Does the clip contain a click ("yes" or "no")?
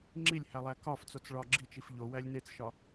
yes